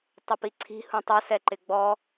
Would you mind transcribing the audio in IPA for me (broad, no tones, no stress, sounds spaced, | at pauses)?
tˤ ʊ p i ǀʰ i̤ h ũ tˤ ʊ s ɛ ǃ ɪ ɡ͡b ɔ